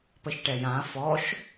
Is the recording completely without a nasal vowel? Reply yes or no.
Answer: no